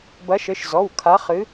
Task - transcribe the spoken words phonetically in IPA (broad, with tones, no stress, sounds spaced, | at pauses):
b ɐ˨˦ ʃ ɘ˩˧˩ ʃ z ɔ˩˧˩ w kʰ a˨˦ χ ɨ˨˦